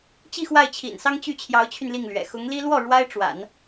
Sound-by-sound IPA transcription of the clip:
t͡ɕi˥˧xwa˥˩ɪ̯ t͡ɕʰḭ˨˩nsɑ˥ŋ t͡ɕy˥˩t͡ɕʰjɑ˧˥ʊ̯t͡ɕʰy˧n li˥˩ŋlɥɛ̰˨˩ xʊ˧˥ŋli˥ lwɔ˥˩ ɻwa˥ɪ̯ʈ͡ʂwa̰˨˩˦n

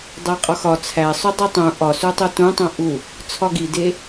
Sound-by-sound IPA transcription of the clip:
dˤæqʼɒxɒ t͡sʰæ sˤudˤitˤũ ʔɒsutˤu tũtˤõ ʔu | t͡sʰɒɡide

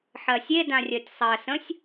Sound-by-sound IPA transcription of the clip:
ħɜsʲe dãrʲɜtʲsˤɜ sə̃sʲ

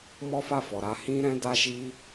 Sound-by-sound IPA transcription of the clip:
mɔ˦fa˦˨fɔ˨ɾa˨˦ hĩ˦ɾɛ̃˦ da˦ʃi˦

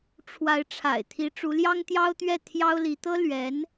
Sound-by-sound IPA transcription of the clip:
ʈ͡ʂʰwa˧˥ɪ̯ʈ͡ʂʰa̰˨˩ɪ̯t̪ʰi˧˥ ʈ͡ʂu˧˥ljɑ˥ŋt̪jɑ˥ʊ̯t̪ɥɛ˥˩ t̪ʰjɑ˥ʊ̯li˧˥ t̪ɤ˥ lɥɛ˧˥n

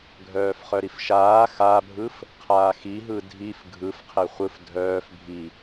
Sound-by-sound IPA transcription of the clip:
ɡʱœːfχœɾifʃaː xabʱɯf | qʰaːxi ɦɯdʱif ɡʱɯfqʰe χʷɯf dʱœːf bʱi

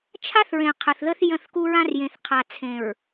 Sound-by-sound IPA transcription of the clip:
t͡ʃʰa˦θɹẽ˨ qʰə˨θðə˦θ jə̃˦˨θku˦ɹã˦r jẽ˨θqʰa˨ t͡sʰẽ˨ɹ

